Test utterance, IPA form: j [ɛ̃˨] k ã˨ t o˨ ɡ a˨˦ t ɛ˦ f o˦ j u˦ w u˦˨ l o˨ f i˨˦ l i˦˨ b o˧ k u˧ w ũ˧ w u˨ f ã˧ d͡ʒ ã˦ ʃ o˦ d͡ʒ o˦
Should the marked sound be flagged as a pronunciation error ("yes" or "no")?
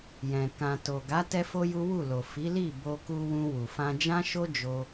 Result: no